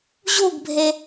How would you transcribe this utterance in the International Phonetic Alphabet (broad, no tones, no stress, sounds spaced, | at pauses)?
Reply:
ʑ u ɡ bʱ e